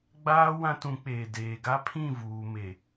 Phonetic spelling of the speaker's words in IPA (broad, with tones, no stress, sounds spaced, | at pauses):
ɡ͡b aː˦ w ã˦ t ũ˨˦ k͡p eː˨ d eː˨ ɡ a˦ pʰ ĩ˦˨ v uː˨ m e˨